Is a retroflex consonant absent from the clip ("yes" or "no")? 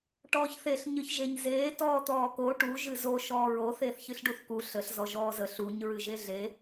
no